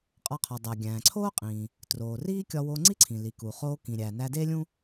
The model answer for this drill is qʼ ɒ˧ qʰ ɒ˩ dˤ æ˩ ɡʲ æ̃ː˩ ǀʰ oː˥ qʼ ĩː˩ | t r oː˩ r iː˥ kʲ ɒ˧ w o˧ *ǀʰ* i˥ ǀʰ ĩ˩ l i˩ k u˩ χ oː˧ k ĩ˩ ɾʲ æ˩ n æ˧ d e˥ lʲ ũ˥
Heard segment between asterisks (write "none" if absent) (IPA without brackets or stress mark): ŋ͡ǀ